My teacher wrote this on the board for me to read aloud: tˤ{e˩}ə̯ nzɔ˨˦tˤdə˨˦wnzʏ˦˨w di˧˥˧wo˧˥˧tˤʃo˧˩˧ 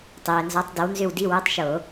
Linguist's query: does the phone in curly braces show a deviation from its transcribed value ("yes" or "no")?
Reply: yes